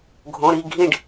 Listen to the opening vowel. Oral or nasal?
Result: nasal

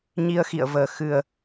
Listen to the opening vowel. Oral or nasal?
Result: oral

